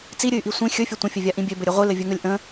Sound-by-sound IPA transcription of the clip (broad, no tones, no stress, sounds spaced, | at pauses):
t͡s i ɾʲ ɨ y̯ ʔ i sʷ ĩ xʲ ɵ fʲ ɘ tʷ ə̃ fʲ ɘ vʲ a ʔ ĩ bʲ ø b ɘ ɾʲ ɘ ʁʷ ɨ l ɘ vʲ ɵ ŋ ɵ lʲ ʔ ə̃